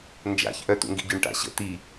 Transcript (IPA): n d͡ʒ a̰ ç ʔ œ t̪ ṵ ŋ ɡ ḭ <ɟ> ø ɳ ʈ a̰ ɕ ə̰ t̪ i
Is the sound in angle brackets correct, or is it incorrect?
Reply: correct